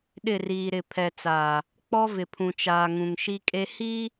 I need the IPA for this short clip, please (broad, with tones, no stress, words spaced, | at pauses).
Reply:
ɗɪ˦˨riː˨ɾɪ˨ pʰɛ˨t͡sa˨ | k͡pɔ˦ vɪ˨pʰũ˨ t͡ʃaː˨ ŋũ˨ŋʃi˦kʼe˦ hi˦